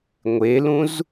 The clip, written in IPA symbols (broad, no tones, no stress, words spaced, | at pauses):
ŋʷelũz